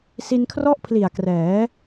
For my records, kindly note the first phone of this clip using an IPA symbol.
s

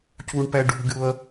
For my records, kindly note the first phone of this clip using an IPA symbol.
c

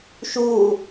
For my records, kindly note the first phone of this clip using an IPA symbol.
ʃ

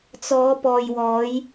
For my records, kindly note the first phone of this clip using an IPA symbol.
t͡s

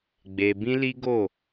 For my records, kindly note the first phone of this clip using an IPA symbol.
ɡ͡b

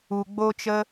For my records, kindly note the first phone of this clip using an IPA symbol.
u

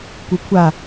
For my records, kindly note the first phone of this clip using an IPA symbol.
kʷ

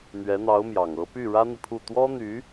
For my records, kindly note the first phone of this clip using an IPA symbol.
n̪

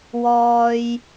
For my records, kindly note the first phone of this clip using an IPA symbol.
w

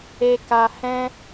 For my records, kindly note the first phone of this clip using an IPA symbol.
e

